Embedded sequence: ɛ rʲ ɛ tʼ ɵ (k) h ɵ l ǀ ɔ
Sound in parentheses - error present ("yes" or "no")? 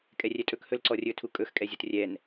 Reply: no